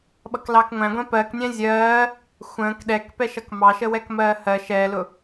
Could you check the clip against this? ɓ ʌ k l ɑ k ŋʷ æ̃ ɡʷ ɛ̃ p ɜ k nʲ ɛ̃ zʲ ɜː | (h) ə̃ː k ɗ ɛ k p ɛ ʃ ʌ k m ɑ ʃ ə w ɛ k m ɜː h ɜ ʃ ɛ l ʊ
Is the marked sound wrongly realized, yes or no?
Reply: yes